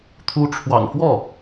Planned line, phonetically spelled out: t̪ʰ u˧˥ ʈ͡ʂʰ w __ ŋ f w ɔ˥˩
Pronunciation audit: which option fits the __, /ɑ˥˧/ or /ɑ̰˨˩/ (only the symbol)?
ɑ̰˨˩